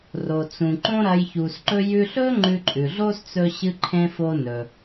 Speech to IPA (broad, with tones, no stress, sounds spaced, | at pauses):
r o˩ t͡s ũ˩ ǃ õ˥ ɾ ɐ˧ j ç u˩ s ǃ ɵ˧ j ʉ˧ ɬ ɵ˥ ŋ͡ǃ ʉ˧ ǃʼ ʉ˩ ɮ o˥ s t͡s ɵ˧ ɕ ɨ˧ ǃʰ ẽ˧ f o˧ n ɵ˩